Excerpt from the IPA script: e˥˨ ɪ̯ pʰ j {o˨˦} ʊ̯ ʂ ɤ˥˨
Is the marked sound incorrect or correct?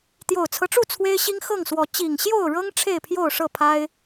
incorrect